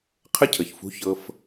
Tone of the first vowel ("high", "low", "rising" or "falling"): high